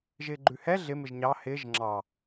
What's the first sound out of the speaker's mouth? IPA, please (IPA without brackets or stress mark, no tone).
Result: ʒ